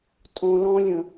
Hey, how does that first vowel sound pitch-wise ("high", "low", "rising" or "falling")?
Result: high